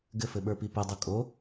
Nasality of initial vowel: oral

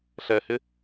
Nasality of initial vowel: oral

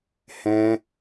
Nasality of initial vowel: nasal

